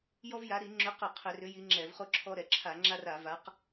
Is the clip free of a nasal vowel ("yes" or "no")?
yes